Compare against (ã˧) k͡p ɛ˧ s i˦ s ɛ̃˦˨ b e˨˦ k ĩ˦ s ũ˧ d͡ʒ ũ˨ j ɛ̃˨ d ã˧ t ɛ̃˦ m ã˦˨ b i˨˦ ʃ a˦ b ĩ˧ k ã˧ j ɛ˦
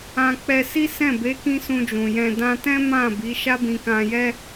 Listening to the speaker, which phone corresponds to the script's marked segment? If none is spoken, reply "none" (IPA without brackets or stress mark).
ã˧